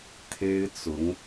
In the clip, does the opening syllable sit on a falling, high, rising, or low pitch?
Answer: high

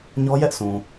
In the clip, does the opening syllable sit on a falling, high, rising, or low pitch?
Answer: high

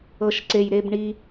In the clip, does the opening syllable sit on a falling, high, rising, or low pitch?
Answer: low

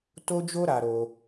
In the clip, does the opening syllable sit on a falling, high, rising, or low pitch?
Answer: high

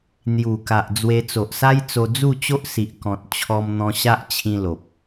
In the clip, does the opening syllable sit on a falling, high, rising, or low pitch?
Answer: low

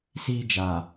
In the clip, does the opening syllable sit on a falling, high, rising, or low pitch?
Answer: high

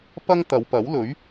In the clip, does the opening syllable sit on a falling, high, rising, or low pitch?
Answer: high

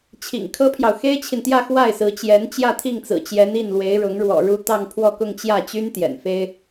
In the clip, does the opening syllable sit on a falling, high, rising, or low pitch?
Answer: low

